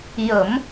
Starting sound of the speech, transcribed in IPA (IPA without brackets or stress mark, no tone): j